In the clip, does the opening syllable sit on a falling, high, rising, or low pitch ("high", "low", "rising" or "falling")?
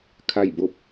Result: falling